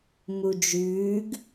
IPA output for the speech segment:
mud͡ʒʉːɡ

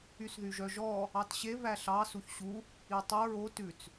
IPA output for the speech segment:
ysðyʒœʒɔ | ɑtɕe væɬɑ suçɕu | itˤu ɹo tʉt͡s

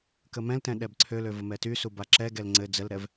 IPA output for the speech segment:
kəmɛ̃ltɛ̃ ɗɛbǀʰølø vəmɛtysu baǁɛɡɛl ŋ͡ǀɘ d͡zəlɾɛv

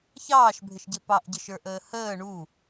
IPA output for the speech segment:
çɑːʃbʱɪʃɟɪ pɑʔɟəʃə˞ʔəː həː ɳu

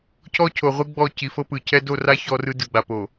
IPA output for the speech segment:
cʰɔ˦cʰo˨ʁʷɯ˦ɡ͡bɔ˦˨ ci˨fɤ˦pɯ˨cʰɛ˦ do˦˨ra˦ çɔ˦rɯ˦ dɯ˨ɡ͡ba˨po˨

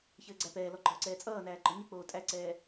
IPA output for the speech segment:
çɘːɡ͡ǀæpɛːlɔ ɡ͡ǃɔːǀɛːt͡sʼʌːnæː ɡ͡ǃɔɲək͡poː tʼæǀɛː

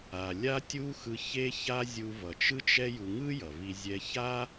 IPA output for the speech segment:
a˩lʲa˧tʲu˧ xɯ˧çe˥ça˥ zʲu˧vʌ˩t͡ʃɯ˥t͡ʃ ɛ˥ju˧ ŋɯ˥ jʌ˩vi˧ zʲɛ˧ça˥

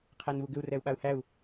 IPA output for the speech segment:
qʰænβuɡʏu̯ rɛu̯ɓau̯hæu̯

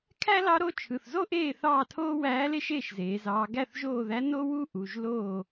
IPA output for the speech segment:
kʰæ˥lɑ˧˥ɾo˧˥ t͡ʃʰɯ˩˧˩θzo˥ʔeː˥˩ θɑː˥˩tʰoː˥wæː˧˥le˥ ʃeː˥˩ʃzeː˩˧ zɑː˩˧ɡæ˥˩θʒoː˥˩ðæ˧˥ no˥wu˥ ʔu˩˧˩ʒloː˥˩

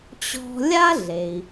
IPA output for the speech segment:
t͡ɕɔ̤˧lʲa˥ɮe˩i̯

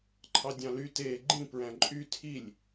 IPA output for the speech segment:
ǃʰɑdʲɑ̃ly teːɡ͡ǃĩ pɹæ̃ǃʼy tʰilʲ

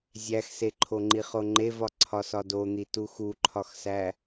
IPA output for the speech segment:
zʲæxseǃʰoŋ͡ǃi χoŋ͡ǃevɒ ǀʰɒsɒdon̪i tuxuǃʰɒxsæ

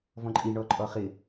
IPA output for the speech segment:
vɔ̃ǃʼi ɳɔǃʼɔχɪ

